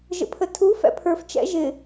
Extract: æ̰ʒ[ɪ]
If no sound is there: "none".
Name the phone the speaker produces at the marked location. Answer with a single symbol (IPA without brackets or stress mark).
ɪ